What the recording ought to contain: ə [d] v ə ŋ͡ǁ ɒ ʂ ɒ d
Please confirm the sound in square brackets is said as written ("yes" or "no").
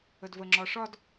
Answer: yes